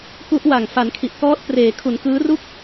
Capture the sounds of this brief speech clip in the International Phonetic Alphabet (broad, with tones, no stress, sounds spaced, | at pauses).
k u˦˥ ʔ w a˨˩ ŋ f a˩˦ n kʰ i˨˩ ʔ k ɔː˦˥ t̚ p r eː˩˦ kʰ u˩˦ n k ɯː˦˥ r u˥˩ k̚